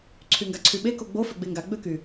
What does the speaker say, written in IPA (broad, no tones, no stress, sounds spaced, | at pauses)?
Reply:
ǀʰ y ŋ ɡ a ǀʰ y ɓ e k o ɡ͡b o f ø ɡ͡b e ŋ ɡ a ɡ͡b ø k y